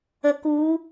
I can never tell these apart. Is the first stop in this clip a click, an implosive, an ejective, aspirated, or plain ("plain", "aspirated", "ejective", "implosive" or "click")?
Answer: plain